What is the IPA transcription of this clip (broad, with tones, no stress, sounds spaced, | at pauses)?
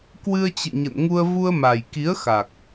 k w ɨ˧ ə̯ t͡ɕ ɨ̰˧˨ ɲ ə̰˧˨ n ŋ u˧ ə̯ v u˧ ə̯ m a˨˩ j k i˨˦ ə̯ x a˨˩ k̚